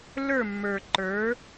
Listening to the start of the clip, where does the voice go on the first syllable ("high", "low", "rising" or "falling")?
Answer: falling